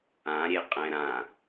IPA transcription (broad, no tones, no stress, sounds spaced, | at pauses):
ã ɾʲ e qʼ ɛ̃ ɾ ã